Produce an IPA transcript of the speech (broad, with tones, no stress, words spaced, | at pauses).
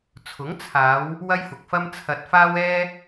t͡sʰʊ˨˥ŋt͡sʰaː˨˧w | wɐ˥jfʊ˨k̚fɐ˥m t͡sʰɐ˧t̚faː˥wɛː˥